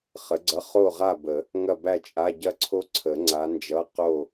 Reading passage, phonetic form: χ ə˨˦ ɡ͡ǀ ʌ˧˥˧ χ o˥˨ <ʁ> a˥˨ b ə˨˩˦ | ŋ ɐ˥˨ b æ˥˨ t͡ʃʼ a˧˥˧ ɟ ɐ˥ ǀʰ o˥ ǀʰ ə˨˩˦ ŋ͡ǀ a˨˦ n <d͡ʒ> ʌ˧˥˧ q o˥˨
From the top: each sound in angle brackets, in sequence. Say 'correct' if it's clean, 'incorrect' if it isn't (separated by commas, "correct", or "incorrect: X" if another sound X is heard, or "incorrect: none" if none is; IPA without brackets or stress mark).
correct, correct